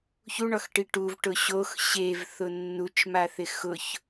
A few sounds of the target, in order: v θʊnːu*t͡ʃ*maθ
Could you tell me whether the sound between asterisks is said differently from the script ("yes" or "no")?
no